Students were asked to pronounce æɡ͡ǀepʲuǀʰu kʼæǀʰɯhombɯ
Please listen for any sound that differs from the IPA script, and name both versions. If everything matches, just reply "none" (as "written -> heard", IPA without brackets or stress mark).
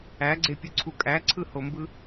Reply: none